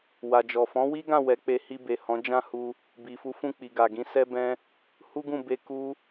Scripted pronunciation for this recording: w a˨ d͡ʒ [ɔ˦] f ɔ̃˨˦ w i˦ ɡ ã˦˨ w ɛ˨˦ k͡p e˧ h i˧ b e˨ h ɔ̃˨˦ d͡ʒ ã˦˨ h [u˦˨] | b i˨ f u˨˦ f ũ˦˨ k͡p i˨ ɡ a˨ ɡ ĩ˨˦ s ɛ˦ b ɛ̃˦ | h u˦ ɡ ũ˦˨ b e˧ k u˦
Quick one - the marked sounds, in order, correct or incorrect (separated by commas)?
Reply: incorrect, incorrect